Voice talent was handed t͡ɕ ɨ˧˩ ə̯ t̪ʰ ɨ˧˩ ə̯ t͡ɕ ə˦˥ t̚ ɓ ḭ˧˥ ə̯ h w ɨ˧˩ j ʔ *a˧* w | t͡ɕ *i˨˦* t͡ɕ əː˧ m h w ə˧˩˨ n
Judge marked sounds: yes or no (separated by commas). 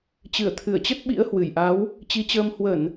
no, yes